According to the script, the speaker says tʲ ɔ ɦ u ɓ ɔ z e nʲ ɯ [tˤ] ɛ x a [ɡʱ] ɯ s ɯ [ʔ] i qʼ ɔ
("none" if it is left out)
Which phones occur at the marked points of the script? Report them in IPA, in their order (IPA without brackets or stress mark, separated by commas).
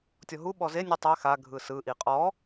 tˤ, ɡʱ, ʔ